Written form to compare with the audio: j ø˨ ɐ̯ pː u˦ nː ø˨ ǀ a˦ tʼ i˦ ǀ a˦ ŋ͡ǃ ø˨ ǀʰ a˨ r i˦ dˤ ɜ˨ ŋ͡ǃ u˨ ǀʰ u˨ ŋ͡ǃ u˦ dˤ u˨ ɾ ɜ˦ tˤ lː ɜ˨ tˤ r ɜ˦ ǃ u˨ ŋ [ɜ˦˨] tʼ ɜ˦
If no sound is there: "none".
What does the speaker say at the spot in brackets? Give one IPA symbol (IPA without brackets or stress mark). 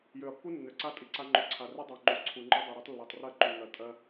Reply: ɜ˨